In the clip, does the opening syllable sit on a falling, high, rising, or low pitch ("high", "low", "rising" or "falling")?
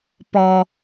low